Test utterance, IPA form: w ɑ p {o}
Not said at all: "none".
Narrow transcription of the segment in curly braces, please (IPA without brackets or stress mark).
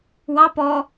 ɔ